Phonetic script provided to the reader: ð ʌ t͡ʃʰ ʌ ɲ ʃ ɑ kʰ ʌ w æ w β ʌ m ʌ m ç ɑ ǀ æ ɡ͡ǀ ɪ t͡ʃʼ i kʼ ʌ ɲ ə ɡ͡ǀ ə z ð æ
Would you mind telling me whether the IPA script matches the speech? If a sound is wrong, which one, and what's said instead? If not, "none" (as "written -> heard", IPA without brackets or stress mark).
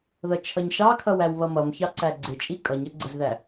none